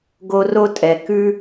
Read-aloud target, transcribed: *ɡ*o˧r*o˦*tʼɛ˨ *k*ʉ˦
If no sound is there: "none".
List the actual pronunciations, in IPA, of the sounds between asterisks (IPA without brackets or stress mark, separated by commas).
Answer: ɡ, o˦, k